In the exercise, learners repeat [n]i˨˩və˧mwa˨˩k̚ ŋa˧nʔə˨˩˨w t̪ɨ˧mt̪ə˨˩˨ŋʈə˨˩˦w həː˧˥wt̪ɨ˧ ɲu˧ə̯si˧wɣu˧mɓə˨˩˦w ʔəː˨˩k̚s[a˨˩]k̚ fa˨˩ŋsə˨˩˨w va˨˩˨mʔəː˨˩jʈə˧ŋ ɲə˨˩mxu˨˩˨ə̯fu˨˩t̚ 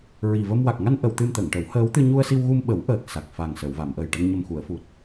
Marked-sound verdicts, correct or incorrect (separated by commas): incorrect, correct